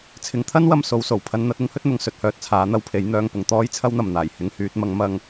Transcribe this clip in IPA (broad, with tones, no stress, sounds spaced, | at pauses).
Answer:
t͡sʰ ɪ˨ ŋ t̪ʰ ɐ˥ n w ɐ˨ m s o˧ w s o˨˩ w pʰ ɐ˧ n n̪ ɐ˨˥ t̚ ɪ˥ ŋ h ɵ˥ t̚ n̪ ʊ˨ ŋ s ɵ˨ t̚ h œː˨ t̚ t͡sʰ aː˨˥ n̪ ɐ˨˧ w pʰ e˨˥ j n̪ œː˧ ŋ p ʊ˨ ŋ t̪ ɔː˥ j t͡sʰ ɐ˥ w n̪ ɐ˨ m n̪ aː˨˩ j h ɪ˧ ŋ h yː˧ t̚ m ɐ˧ ŋ m ɐ˧ ŋ